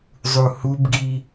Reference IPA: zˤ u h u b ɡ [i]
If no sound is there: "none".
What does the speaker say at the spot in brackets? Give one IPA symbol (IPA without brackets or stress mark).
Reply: i